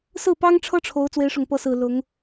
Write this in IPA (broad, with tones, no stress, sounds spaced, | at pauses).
s ɹ̩˥˩ p ɑ˥ ŋ ʈ͡ʂʰ ɤ˥ ʈ͡ʂʰ o˧˥ ʊ̯ t͡s w e˧˥ ɪ̯ ʂ ʊ˨˩ ŋ p ɤ˧˥ s ɹ̩˨˩ l ʊ˧˥ ŋ